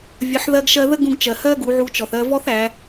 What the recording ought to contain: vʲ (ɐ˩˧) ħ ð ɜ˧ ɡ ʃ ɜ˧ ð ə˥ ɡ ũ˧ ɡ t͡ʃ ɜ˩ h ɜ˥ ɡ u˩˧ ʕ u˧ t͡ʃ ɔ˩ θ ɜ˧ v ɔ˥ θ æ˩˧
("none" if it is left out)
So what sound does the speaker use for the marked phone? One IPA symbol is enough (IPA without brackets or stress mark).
ə˩˧